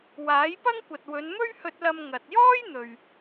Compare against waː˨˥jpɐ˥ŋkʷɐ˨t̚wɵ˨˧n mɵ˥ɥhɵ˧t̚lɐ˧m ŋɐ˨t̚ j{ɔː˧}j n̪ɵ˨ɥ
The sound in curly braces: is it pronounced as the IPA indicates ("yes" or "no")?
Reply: no